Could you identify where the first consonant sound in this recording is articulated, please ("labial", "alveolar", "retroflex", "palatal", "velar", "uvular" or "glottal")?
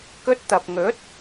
velar